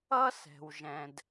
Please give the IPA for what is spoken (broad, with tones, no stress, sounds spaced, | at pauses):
ʌ˥ s ɛ̤˩ w ʒ ɛ̃˩ d